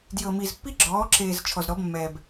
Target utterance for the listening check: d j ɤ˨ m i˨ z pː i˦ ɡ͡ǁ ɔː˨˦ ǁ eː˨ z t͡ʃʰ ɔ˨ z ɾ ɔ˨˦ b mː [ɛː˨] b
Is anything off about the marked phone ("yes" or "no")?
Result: no